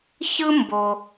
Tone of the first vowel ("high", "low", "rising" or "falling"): high